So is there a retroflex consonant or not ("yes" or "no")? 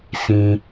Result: no